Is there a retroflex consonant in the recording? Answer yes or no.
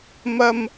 no